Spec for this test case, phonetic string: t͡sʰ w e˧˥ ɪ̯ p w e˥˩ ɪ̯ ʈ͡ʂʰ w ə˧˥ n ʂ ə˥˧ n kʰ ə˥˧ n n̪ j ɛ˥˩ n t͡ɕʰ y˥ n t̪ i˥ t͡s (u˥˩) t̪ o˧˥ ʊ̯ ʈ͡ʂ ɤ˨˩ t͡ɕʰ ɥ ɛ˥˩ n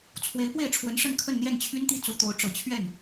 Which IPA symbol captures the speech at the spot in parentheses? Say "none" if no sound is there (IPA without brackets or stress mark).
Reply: u˧˥